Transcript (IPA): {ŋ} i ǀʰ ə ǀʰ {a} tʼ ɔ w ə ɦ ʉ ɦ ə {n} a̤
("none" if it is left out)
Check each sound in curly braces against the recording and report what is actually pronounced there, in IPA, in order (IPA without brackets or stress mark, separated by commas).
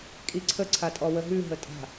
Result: kʼ, a, tʼ